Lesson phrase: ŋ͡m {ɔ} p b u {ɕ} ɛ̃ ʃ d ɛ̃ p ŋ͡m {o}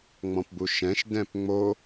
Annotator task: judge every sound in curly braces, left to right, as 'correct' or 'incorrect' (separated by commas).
incorrect, incorrect, correct